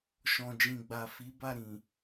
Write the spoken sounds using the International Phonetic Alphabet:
ʃɔ̃˨d͡ʒĩ˨ɡ͡ba˨fi˨˦ ba˦˨ɾĩ˨

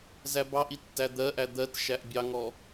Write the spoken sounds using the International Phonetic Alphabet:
zæbɑʔi tːæd̪ɜʔæ d̪ɜtʃæʔ bʲɑŋɔ

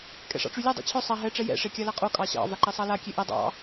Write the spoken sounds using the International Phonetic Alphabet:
kʼɛ̰ʂɑ̰ʈ͡ʂylʲo dˤo̰t͡ɕʰœ sˤa ɦɛ ʈ͡ʂɛjɛ̰ ʂekʲalaqʼo kʼɑɕɑ̰ vaǃesˤɑla kʲeʔe dˤɑ̰

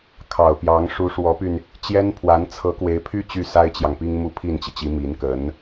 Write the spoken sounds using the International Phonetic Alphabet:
kʰɑ˨˩ʊ̯pjɑ˧˥ŋ ʂu˧˥ʂwɔ˧˥py˧n | t͡ɕjɛ˥npʰwa˧˥n t͡sʰɤ˧˥kwe˧˥ɪ̯pʰy˥ t͡ɕy˥˩sa˥ɪ̯t͡ɕjɑ˨ŋpi˥ŋ mu˥˧pʰi˥˩nt͡ɕi˩t͡ɕi˧˥ mi˧˥nkə˧˥n

